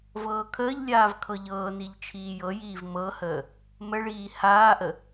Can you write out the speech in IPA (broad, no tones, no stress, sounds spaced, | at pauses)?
v ɤː kʰ əː ʎ lʲ aː v kʰ ɤ ʎ ɤː n i ʎ t͡ʃʰ iː j ɤ j iː v m ɤ h əː | m ə ɭ iː h aː ʔ ə